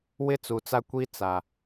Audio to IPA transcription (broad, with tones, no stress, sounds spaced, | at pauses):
w ɪ˦ t͡s u˨ t͡s a˦ kʷ i˦ t͡s a˨